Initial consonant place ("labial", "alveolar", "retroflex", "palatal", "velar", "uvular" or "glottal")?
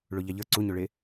retroflex